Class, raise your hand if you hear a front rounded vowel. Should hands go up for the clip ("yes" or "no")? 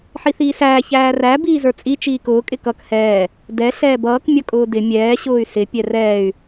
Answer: yes